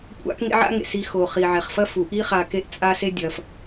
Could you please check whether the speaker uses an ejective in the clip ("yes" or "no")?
yes